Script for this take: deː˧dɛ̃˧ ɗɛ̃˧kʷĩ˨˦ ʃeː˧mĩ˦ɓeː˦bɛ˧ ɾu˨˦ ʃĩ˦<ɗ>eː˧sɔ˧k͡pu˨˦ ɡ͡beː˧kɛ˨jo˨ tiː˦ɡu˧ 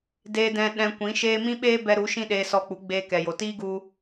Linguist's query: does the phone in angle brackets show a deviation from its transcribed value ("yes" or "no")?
no